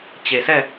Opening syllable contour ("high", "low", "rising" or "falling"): low